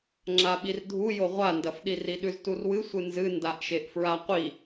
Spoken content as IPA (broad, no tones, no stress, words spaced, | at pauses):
ŋ͡ǁaɓirdʱu joʁʷandɐfɗi riɗʉzturwɨ sʷɨnzɨ ndaʔʃeʔfɹaqʷi